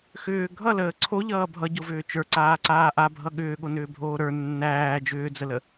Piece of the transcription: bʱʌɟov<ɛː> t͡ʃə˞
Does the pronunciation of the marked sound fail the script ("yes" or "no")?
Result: yes